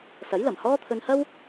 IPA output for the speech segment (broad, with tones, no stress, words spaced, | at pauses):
sɐ˨˥jlɐ˨˩mhɔː˥t̪ʰɵ˧n hɐ˥w